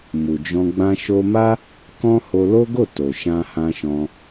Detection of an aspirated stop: absent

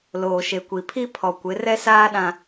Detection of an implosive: present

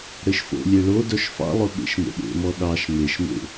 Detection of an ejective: absent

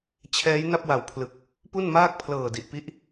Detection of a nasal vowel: absent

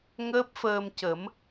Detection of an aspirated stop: absent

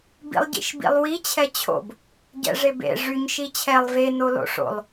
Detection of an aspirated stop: present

